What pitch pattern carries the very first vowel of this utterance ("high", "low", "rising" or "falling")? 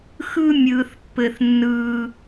high